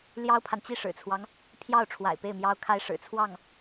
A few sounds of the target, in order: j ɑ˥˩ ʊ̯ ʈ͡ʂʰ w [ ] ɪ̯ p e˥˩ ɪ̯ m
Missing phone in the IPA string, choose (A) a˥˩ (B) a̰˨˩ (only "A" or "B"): B